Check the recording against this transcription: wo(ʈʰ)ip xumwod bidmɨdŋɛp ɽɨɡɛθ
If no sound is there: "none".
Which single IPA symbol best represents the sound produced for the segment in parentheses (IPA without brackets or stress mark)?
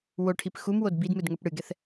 ʈʰ